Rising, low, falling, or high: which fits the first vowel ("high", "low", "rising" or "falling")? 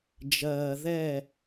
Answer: low